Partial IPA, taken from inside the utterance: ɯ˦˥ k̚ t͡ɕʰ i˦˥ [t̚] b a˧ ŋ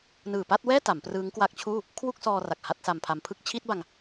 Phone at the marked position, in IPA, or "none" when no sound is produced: t̚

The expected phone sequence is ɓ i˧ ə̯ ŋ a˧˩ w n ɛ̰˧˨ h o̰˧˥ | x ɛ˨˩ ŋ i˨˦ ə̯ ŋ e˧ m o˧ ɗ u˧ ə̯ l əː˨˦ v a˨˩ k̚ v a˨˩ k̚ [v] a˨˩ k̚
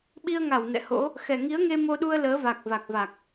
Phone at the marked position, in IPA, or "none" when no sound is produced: v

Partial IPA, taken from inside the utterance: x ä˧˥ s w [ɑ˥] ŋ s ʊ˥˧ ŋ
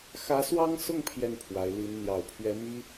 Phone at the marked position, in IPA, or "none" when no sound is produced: ɑ˥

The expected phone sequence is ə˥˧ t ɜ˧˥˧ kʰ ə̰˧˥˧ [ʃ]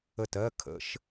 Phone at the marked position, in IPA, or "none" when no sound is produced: ʃ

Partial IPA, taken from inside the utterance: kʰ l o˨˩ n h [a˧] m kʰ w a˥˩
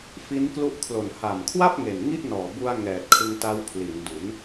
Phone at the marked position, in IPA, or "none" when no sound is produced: a˨˩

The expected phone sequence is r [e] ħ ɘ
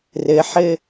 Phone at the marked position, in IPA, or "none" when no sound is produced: ɘ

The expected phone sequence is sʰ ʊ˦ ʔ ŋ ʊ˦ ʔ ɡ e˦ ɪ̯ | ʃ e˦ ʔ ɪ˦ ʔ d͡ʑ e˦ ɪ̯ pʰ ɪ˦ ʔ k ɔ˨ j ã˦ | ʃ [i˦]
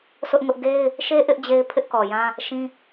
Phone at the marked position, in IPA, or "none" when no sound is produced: ĩ˦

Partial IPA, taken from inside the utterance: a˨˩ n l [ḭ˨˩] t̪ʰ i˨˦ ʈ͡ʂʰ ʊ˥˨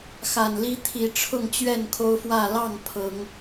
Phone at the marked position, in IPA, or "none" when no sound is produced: i˦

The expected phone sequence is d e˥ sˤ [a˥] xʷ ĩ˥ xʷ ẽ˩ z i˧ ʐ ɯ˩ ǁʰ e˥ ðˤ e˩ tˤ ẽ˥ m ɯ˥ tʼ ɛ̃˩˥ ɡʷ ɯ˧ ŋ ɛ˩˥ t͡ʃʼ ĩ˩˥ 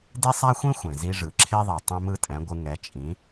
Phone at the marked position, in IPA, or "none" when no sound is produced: a˥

